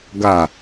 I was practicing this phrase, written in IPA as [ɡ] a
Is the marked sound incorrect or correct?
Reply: correct